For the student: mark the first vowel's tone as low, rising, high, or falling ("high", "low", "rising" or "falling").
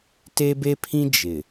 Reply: high